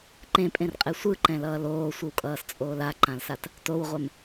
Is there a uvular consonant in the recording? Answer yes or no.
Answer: yes